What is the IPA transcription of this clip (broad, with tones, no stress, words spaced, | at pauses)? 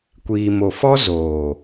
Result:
kʷiː˨mo˨fɔ˦ zoː˨